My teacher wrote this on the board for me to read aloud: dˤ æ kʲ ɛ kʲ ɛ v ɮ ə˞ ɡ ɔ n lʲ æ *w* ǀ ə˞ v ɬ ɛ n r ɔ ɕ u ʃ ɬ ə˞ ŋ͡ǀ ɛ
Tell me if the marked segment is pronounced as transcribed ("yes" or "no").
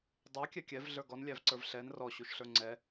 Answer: no